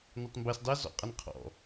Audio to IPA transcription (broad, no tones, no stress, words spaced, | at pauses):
nɑtˤmbɛs dˤɛ zɔ̰qʼʌnqʰɔ̰